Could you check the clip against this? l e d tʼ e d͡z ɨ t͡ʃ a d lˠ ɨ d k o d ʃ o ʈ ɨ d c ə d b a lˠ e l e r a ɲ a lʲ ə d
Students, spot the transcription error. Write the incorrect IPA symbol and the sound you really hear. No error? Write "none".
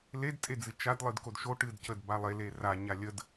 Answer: none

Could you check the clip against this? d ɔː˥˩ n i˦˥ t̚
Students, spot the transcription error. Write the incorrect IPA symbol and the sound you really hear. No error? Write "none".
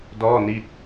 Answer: none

